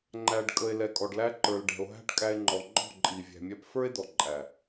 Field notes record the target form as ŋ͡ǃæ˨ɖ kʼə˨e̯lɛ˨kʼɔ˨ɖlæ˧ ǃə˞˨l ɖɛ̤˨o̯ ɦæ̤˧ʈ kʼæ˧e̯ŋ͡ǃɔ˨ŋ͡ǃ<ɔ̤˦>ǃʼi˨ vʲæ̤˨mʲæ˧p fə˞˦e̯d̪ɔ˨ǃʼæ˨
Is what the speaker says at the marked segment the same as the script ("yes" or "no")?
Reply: no